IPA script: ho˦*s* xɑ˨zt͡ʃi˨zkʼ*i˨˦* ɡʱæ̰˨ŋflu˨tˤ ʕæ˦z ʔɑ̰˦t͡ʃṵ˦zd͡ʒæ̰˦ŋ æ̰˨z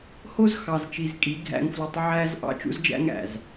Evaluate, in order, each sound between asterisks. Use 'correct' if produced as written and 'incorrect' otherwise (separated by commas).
incorrect, correct